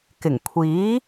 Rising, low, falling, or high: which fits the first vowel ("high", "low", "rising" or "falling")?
low